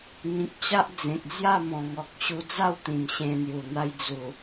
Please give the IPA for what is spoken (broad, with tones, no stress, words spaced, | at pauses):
ŋĩ˨k̚t͡ɕa˦ʔ d͡zẽ˨k̚d͡zja˥˧mɔ̃˨˩ŋɔ˨k̚ ɕu˧d͡za˥˧wt̪ĩ˨˩m ɕẽ˧n̪ju˨˩ n̪a˧j d͡zu˨˩